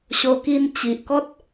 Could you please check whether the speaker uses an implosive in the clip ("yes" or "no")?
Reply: no